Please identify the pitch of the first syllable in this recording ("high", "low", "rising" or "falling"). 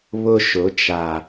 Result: high